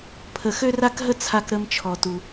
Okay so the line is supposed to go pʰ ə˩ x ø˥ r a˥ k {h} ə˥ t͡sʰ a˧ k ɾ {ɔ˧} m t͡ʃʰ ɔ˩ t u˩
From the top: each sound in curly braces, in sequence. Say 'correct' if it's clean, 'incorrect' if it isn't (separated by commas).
incorrect, incorrect